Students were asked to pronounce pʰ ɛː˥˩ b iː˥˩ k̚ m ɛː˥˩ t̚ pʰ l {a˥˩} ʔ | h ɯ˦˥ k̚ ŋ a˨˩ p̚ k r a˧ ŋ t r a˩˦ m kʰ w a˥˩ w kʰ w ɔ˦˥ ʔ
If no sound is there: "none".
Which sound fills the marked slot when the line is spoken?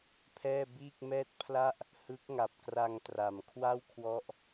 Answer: a˥˩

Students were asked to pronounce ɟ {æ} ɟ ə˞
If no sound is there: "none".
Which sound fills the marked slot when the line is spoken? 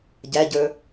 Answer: æ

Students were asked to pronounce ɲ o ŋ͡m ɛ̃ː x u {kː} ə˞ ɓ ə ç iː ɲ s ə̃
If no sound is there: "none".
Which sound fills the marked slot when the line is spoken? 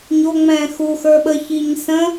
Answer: x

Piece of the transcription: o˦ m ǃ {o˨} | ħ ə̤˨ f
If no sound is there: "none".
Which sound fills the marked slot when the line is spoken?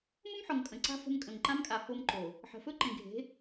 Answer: o˨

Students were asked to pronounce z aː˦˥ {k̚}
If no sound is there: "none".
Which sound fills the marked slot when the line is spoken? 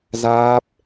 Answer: p̚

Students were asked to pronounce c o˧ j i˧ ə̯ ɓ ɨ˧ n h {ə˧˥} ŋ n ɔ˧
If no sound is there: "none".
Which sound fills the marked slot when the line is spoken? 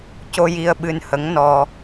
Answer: ə˧˥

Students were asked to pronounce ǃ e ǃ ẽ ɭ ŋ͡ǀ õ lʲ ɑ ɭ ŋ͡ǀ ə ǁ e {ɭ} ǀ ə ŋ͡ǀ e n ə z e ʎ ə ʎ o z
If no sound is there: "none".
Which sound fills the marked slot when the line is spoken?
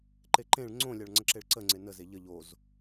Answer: ɭ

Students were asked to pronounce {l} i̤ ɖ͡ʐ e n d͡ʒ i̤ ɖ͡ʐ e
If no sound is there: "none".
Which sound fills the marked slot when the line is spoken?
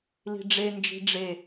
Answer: l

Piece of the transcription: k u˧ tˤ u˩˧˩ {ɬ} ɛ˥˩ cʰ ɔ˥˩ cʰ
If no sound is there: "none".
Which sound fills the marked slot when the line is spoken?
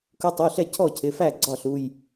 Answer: ɬ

